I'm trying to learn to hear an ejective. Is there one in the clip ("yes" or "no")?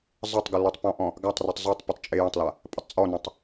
yes